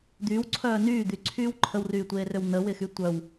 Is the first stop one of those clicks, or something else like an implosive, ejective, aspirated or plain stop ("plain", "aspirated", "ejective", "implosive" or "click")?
plain